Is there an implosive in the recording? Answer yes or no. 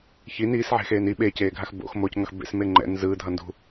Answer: yes